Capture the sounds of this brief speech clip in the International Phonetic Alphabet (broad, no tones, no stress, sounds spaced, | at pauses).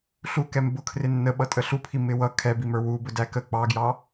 ɬ u k ɛ m b ʊ kʰ r ɪ nː ə ɓ ʌ tʼ ə ɬ u pʰ i m ɪ w ʌ kʰ ɛ b i m ə˞ w u b ʊ d æ k ə k͡p ɑ ɡ j ɑ